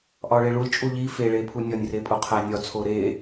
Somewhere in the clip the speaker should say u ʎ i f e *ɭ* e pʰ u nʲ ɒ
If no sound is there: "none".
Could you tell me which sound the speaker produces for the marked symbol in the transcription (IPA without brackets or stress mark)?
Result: ɭ